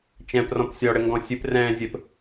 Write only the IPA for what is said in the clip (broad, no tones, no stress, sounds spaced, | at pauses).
t͡ʃ ɛ̃ p r ɔ̃ p sʲ ɔ ɽ ɘ ŋ ɡ ɔ̃ sʲ ɨ p r ɛ̃ː zʲ ɘ p